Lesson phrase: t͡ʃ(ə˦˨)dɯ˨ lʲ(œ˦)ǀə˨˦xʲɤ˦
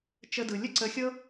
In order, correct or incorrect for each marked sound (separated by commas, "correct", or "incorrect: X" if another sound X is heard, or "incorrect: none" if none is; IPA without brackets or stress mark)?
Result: incorrect: ə˧, incorrect: ə˦